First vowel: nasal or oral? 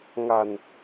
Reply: oral